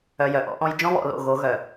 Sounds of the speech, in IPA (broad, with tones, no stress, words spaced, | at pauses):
œ˨ jœ˨ʔɔ̰˦ʔɔ̃˦j d͡ʒɔ̃˦βɔ̰˨lo̰˨ ɣo˨˦ ɣœ˨